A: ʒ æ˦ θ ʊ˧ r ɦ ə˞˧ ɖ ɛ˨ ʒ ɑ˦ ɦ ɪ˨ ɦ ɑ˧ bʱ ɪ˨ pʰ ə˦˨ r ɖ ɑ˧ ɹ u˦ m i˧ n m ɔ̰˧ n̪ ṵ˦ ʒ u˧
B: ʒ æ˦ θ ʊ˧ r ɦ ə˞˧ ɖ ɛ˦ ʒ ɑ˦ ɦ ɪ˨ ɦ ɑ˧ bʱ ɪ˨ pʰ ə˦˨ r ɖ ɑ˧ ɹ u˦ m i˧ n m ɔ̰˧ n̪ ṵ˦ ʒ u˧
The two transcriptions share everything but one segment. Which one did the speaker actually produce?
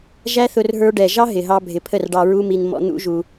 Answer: A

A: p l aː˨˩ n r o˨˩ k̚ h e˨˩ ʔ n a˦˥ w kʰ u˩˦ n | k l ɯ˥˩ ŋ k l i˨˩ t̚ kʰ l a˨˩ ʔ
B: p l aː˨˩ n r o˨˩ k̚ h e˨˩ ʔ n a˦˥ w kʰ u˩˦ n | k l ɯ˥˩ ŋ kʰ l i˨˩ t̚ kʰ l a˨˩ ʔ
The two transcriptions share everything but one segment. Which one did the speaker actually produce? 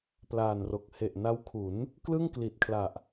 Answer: A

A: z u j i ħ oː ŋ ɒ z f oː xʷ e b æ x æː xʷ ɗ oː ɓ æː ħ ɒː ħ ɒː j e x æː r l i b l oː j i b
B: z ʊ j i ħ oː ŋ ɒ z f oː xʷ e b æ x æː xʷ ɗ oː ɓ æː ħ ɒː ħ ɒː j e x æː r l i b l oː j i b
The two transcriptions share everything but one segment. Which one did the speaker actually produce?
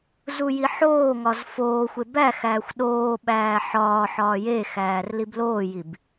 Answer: A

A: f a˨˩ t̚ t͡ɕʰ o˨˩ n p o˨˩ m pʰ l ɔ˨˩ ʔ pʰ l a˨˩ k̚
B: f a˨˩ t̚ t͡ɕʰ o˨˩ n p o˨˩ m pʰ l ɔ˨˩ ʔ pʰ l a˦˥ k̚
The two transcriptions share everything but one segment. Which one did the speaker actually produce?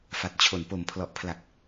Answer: A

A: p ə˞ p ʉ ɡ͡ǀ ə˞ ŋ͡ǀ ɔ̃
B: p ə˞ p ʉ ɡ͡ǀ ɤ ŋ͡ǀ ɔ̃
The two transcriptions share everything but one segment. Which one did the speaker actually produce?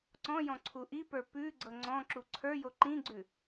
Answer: B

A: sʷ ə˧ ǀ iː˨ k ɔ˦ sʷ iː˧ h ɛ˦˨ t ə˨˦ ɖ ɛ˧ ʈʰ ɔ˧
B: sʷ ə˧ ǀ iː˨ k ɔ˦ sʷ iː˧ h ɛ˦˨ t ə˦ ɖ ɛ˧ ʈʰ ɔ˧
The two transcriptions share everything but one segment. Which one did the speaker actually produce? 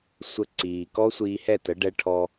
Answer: A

